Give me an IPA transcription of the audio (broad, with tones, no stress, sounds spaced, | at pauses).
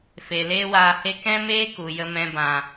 f e˨ l eː˦ w aː˧ h e˦ k ɛ̃˦ m eː˦ k u˨ j ə˧ m ɛ̃˧ b ã˨